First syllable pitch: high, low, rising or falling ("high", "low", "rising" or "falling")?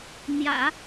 low